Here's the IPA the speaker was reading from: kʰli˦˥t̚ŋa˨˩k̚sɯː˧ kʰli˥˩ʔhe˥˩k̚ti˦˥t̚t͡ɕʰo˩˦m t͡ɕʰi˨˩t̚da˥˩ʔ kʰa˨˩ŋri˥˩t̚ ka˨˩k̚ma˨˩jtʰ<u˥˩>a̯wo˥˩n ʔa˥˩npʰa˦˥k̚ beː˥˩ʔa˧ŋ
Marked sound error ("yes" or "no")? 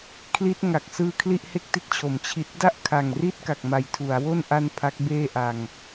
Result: yes